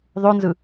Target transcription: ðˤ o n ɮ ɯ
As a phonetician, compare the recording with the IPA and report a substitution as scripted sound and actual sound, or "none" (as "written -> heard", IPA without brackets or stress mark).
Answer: ɮ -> z